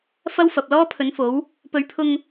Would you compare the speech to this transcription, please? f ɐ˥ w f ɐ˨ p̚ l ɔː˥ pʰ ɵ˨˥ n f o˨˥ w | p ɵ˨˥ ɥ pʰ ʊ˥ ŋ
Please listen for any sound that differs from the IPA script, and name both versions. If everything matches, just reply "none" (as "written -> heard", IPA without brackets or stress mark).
ʊ˥ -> ʊ˧